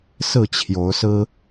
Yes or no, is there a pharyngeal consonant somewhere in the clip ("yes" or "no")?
no